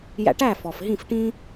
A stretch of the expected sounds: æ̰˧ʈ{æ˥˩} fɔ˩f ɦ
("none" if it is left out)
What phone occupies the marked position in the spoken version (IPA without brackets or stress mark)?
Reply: æ˥˩